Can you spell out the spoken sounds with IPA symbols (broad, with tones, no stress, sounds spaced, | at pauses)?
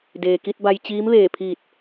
d eː˩ k i˧ t̚ b a˧ j t͡ɕ iː˧˥ m ʋ eː˧˩ pʰ iː˧˩ t̚